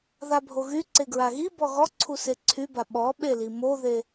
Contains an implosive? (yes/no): yes